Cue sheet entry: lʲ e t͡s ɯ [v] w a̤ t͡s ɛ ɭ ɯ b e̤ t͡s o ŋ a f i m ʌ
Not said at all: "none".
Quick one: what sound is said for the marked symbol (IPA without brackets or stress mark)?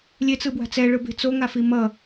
b